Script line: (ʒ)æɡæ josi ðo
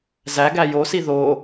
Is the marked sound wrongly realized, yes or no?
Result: yes